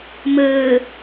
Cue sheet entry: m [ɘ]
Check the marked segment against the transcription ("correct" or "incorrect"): correct